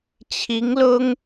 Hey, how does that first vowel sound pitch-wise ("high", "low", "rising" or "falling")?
rising